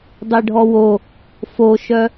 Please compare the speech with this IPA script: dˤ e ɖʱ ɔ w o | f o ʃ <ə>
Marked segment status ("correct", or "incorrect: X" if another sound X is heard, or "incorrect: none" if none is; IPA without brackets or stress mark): incorrect: œ